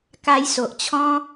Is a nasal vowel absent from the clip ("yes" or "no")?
no